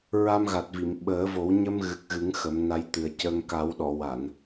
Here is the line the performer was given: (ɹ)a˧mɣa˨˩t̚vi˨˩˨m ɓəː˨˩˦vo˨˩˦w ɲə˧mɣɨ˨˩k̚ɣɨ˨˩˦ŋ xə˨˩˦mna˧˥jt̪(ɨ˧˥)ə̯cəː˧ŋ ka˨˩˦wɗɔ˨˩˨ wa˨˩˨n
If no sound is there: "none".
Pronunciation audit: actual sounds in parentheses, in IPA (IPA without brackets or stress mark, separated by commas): ɹ, ɨ˨˩